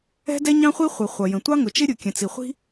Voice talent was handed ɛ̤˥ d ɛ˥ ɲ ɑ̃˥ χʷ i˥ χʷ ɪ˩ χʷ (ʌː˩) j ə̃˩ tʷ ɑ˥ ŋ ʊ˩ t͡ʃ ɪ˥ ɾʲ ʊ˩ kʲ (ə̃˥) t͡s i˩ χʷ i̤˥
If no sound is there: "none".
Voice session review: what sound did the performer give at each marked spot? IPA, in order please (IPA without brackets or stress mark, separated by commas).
ʌ˩, ə̃˩